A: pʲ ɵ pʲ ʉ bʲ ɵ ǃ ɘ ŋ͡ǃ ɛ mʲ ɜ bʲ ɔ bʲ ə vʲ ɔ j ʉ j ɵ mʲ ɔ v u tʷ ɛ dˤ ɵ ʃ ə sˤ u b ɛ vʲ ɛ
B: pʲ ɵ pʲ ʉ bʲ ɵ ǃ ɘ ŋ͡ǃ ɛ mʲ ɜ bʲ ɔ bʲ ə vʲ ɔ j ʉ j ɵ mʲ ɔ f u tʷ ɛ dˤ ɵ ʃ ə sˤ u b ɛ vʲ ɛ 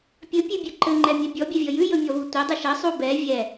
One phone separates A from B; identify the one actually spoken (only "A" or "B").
A